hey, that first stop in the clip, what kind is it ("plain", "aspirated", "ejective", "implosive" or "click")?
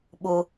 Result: implosive